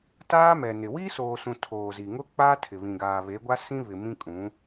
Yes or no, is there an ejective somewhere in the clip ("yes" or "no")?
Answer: yes